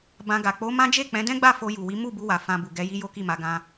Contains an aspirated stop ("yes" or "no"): no